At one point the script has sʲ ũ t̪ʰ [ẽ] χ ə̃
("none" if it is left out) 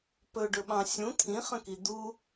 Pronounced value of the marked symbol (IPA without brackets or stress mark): ĩ